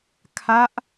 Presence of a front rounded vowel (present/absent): absent